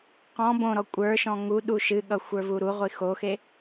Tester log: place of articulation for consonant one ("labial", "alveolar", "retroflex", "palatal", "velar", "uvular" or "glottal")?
uvular